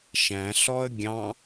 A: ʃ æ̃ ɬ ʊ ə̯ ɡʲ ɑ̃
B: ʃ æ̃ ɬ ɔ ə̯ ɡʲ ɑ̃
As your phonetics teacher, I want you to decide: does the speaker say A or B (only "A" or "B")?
B